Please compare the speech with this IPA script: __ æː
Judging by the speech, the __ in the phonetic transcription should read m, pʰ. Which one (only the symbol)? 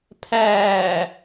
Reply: pʰ